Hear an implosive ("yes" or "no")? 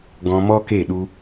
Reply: yes